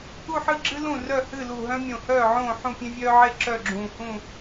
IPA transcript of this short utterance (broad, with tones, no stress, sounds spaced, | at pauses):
u˥˨ ħ ɨ˥˨ ɡ͡ǁ ɨ˥ l ũ˥˨ r œ˥˨ h ɨ˥˨ l u˧˩ ɦ œ̃˥ mʲ õ˧˩ h œː˥˨ ʕ õː˥˨ ħ ũ˥˨ pʲ ẽ˥ vʲ œː˥ ʕ e˥ ǁ œ˥˨ ɡ͡ǁ ũː˧˩ h ũ˥˨